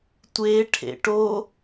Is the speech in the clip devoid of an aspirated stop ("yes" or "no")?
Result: no